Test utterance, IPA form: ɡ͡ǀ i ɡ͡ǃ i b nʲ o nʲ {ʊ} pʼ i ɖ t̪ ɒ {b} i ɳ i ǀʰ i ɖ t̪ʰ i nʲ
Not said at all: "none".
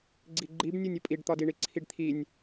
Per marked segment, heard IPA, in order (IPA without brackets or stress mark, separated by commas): ʊ, d